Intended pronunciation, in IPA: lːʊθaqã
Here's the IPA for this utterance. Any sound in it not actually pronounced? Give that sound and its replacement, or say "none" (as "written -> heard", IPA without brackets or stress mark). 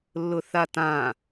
q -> t